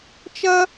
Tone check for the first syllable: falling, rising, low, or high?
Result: high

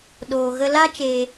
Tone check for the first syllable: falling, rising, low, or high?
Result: low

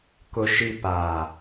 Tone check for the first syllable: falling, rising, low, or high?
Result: low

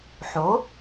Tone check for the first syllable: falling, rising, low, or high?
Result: rising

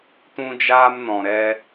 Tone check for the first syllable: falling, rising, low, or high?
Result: high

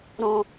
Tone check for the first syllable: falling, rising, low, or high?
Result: low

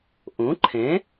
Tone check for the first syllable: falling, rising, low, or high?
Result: rising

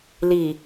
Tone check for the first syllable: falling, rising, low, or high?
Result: low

